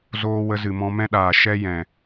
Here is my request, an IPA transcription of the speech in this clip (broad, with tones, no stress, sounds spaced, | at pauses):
z oː˧ w ə˧ z ɨ˨ m ɔ̃˧ m ɛ̃˦ ɗ aː˨ ʃ ɛ˦ j ɛ̃˨